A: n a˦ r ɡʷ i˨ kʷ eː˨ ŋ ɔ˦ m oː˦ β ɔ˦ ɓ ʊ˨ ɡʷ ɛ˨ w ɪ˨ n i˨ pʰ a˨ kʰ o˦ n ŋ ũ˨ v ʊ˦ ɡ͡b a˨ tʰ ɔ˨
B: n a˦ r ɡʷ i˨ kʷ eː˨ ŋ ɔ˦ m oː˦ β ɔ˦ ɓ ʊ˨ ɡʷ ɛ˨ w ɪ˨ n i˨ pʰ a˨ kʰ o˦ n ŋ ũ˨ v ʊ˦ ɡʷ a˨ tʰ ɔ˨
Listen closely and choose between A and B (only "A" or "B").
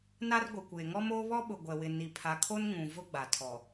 A